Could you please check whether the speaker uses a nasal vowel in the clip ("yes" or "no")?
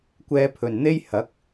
no